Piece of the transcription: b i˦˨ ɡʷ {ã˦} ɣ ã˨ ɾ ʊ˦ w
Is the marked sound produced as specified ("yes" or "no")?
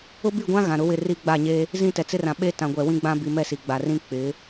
yes